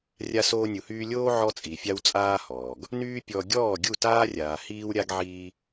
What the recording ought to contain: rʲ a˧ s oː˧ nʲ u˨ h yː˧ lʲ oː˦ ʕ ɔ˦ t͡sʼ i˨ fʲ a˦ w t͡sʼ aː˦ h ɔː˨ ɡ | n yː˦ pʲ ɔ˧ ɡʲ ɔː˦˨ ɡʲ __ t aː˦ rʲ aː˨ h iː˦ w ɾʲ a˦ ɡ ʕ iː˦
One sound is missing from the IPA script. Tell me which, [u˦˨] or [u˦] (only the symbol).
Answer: u˦˨